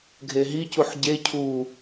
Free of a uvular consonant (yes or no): yes